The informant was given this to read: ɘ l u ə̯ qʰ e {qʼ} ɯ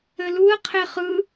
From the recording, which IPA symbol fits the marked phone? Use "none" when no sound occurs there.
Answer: χ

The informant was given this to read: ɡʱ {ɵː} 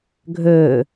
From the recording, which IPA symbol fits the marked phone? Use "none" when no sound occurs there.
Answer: ɵː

